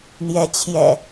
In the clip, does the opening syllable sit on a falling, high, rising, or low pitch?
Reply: rising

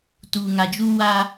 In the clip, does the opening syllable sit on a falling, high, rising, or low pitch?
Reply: low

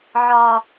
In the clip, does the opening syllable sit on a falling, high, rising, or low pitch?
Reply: high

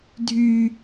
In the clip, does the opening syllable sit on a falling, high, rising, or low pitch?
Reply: high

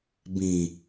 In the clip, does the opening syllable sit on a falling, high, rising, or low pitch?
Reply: low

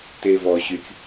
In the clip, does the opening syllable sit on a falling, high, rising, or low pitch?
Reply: low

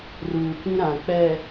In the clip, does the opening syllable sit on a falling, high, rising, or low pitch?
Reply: low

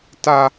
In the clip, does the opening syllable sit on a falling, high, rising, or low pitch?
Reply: high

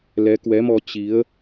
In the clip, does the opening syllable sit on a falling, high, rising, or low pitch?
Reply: rising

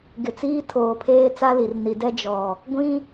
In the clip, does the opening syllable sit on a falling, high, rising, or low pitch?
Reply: low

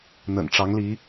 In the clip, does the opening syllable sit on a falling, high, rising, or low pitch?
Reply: low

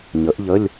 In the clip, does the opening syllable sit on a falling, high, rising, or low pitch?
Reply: rising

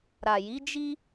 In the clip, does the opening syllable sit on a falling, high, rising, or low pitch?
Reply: low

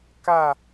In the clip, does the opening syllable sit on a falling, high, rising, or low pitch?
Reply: falling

